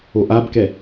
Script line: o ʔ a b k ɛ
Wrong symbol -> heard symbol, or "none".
none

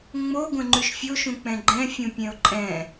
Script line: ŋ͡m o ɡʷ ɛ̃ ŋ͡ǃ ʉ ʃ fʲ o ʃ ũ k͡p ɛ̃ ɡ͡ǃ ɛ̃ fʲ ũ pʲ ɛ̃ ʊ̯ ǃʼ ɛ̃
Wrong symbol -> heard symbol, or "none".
none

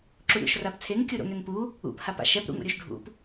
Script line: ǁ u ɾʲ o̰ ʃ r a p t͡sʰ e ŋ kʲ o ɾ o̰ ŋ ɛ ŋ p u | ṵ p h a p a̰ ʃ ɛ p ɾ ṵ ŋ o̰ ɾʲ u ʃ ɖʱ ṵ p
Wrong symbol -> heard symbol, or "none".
none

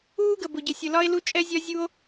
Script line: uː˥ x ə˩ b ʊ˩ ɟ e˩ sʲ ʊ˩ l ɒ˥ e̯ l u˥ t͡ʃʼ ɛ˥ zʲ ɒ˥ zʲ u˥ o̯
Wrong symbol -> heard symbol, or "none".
x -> ɡ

